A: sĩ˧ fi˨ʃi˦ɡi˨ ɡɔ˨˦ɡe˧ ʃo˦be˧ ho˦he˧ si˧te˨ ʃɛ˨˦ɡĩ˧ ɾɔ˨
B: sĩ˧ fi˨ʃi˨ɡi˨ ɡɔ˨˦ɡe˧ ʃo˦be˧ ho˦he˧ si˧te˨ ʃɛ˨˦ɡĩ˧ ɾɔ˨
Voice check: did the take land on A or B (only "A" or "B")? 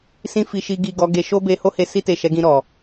B